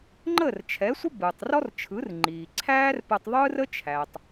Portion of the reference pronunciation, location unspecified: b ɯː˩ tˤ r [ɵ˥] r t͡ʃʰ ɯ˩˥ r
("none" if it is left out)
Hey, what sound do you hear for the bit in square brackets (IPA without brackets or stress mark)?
ɔ˥